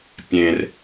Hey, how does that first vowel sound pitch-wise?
low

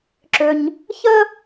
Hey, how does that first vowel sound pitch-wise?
low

